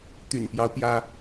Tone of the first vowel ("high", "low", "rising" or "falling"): low